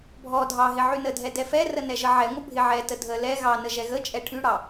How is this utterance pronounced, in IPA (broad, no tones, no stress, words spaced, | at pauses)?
bʱɔ dʱɑɦɪ ʕynədʱɛ dɛfɛrə nɛʒəʕɛŋʷə bʱɪʕɛtə dʱə lɛ ɣɑnə ʒɛɣət͡ʃʼɛ ʈʰyɽɑ